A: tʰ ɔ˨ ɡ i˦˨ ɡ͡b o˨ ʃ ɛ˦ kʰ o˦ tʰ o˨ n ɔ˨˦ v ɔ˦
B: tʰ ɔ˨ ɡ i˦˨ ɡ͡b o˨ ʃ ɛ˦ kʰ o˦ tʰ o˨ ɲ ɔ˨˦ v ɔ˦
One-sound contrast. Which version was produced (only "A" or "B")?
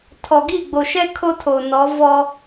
A